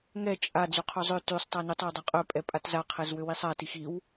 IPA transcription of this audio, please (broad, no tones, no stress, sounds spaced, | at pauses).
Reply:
ŋ ɛ t͡ʃʼ a d͡z y qʰ ø zˤ ø t y sˤ tˤ a n ø tˤ a w dˤ a qʼ ø pʼ ɛ pʼ a t z a qʰ ɛ z w ø w i sˤ a t i x i w